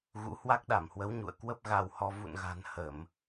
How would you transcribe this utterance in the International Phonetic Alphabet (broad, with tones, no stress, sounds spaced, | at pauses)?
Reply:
ɣ ṵ˧˥ h w a˦˥ k̚ ɗ a˧˩ m h w ə˨˦ w ɲ ṵ˧˨ ə̯ k w ə˦˥ p̚ ɣ a˧ w h ɔ˧ v ṵ˧˨ n ɣ a̤˨˩ n h ə˧˩˨ m